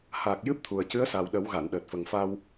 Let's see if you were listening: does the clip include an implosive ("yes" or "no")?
yes